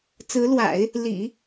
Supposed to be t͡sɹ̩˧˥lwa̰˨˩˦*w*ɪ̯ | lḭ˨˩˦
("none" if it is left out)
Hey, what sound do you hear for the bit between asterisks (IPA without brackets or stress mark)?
none